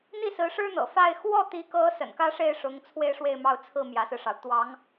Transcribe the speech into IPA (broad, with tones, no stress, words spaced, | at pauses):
n̪i˥˩sɹ̩˧˥ʂɻ̩˥ n̪ɤ̰˨˩ fa˥˧ɪ̯ xwɔ˥˩t̪i˧˥kɤ˧˥ sə̰˨˩nkä˥ʂe˥˩ɪ̯ʂʊ˧˥ŋ t͡sʰwe˥˧ɪ̯ʂwe˥˧ɪ̯mɑ˥˧ʊ̯t͡sʰɹ̩˥˩ mjä˧˥sɹ̩˧ʂɑ˩ʊ̯ t̪wɑ˧˥ŋ